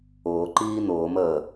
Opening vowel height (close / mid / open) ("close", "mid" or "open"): close